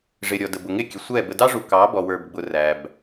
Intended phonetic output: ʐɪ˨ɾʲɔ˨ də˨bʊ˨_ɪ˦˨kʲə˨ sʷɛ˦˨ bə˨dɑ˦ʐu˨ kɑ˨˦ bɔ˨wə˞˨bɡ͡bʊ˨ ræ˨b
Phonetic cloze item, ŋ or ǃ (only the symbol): ŋ